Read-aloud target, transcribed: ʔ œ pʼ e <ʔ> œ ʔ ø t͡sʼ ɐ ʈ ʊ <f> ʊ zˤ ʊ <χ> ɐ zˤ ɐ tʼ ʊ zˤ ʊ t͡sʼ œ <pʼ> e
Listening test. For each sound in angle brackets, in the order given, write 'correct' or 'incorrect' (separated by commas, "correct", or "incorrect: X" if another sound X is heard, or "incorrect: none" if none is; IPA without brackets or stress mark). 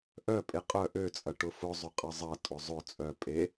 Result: incorrect: qʼ, correct, incorrect: qʼ, correct